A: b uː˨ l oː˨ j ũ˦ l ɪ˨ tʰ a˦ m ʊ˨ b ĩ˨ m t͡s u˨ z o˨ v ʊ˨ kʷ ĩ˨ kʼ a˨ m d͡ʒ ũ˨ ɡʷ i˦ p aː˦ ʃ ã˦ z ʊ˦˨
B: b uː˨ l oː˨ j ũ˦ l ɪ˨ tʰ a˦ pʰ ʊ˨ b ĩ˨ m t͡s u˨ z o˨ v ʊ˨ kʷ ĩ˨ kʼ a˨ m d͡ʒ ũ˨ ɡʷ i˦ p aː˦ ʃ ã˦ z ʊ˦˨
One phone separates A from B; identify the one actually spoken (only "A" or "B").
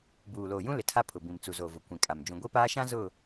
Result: B